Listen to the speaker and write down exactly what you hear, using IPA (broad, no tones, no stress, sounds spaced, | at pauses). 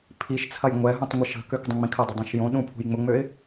pʰ i ʃ t͡sʰ ɐ j ŋʷ ɛ ɦ ũ tˤ ŋʷ ə ʃ ə̤ k ø k dˤ ũ ŋ͡m ĩ kʰ ə dˤ ʊ dˤ ũ ʃ j õ ɗ ũ pʰ ṳ j ŋ͡m ʊ ŋ͡m ø ɪ̯